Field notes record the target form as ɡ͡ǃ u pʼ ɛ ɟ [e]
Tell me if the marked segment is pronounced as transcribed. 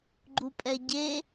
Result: yes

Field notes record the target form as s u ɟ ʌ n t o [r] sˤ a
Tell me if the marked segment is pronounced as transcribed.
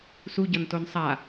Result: no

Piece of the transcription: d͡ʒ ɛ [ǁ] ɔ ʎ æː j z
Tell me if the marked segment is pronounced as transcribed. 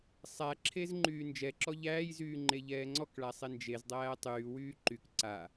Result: yes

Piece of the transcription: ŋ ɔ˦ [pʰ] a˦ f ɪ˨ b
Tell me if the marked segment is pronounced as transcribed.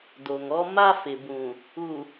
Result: no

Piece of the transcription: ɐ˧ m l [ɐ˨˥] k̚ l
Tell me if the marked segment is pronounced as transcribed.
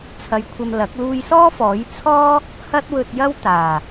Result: yes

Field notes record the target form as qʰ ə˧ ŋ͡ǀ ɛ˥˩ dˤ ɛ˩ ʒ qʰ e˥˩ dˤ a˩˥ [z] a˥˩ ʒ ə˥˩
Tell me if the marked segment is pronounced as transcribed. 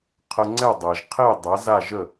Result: yes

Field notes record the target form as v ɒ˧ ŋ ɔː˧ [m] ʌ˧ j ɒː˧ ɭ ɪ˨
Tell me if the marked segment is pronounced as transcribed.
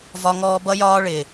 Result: no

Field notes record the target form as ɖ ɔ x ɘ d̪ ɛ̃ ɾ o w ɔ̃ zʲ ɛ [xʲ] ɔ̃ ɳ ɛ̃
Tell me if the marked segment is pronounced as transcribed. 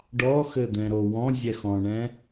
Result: no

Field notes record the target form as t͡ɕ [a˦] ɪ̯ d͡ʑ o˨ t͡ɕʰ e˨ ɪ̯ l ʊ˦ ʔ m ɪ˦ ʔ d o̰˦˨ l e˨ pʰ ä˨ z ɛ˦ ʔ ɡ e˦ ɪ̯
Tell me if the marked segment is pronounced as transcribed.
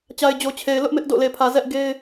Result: no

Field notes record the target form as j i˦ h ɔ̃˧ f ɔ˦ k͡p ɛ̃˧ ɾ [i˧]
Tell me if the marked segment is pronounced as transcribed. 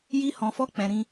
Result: no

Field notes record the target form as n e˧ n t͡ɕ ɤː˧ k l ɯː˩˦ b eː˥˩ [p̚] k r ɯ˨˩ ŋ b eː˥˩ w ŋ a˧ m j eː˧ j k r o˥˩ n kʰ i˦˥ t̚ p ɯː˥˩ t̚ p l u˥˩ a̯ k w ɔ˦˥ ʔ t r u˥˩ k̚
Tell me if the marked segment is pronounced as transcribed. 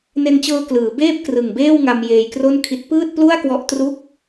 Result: yes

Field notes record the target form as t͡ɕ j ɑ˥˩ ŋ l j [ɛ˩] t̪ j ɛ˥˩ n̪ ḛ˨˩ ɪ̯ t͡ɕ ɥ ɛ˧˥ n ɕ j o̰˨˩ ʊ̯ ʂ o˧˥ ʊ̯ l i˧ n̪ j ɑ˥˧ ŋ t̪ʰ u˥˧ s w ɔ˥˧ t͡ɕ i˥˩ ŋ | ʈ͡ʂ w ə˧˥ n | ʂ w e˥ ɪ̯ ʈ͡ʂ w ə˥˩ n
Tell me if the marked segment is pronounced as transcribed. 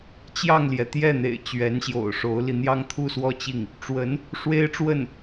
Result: yes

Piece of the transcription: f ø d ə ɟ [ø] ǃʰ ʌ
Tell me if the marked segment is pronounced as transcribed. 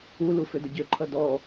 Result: yes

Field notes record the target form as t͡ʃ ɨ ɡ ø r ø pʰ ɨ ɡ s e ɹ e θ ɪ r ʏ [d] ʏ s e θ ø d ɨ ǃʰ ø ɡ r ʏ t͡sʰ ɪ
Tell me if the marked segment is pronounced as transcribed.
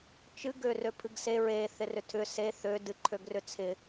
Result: no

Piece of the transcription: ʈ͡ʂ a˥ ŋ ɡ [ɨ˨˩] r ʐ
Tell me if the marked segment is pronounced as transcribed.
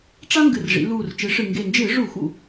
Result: yes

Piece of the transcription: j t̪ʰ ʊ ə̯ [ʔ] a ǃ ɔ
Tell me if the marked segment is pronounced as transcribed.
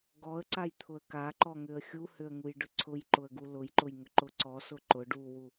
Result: no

